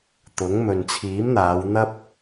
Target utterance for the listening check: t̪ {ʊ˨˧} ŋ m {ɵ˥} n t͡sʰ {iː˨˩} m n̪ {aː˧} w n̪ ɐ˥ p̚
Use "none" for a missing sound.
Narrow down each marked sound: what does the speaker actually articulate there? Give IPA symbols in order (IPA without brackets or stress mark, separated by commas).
ʊ˨˥, ɵ˨, iː˨˥, aː˨˧